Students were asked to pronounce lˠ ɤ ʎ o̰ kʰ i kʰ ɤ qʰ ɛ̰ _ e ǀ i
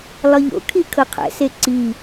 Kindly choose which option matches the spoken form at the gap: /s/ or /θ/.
s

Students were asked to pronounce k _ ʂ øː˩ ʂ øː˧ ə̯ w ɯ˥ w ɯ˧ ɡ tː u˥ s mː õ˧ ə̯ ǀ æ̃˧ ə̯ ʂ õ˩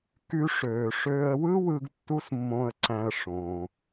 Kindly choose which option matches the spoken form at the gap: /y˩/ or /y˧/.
y˧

